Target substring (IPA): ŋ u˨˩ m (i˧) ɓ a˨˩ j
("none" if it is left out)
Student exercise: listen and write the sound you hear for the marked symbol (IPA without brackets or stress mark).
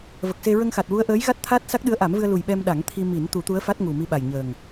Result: i˧